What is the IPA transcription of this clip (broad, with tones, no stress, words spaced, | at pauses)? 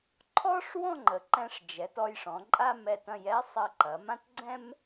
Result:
ǃʰɔ˥ʂ wɔ̃˥˧ŋ͡ǃə˩˧ ǃɛ̃˧ʂd͡ʒɛ˩˧t ɔ˧jʂɔ̃˩˧ǃʼa˥˧m ɛ˧˩tɐ̃˧j ɛ˥sˤɐ˧ǃɐ˩˧mã˥t ɡ͡ǀɛ̃˥m